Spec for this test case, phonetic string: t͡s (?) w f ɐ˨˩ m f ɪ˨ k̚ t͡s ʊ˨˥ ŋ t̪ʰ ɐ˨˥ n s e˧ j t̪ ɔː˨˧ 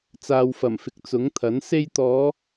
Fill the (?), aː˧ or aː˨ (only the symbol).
aː˨